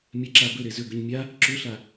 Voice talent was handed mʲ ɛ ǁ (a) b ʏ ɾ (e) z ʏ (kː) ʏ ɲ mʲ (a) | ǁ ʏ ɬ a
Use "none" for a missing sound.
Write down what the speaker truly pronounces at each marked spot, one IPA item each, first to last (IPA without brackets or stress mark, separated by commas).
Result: a, e, ɡ, a